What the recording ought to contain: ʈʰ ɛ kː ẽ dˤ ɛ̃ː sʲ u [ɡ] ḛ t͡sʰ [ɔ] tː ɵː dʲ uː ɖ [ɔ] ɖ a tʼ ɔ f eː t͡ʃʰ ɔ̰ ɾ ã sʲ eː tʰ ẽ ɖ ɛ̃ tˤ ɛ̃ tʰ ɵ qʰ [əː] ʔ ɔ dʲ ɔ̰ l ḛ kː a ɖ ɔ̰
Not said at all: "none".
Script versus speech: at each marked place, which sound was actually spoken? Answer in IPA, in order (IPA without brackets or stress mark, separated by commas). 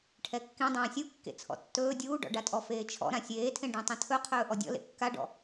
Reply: kː, ɔ̰, ɔ̰, ɵː